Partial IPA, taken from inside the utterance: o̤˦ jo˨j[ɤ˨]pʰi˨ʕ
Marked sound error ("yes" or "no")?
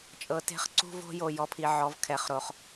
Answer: yes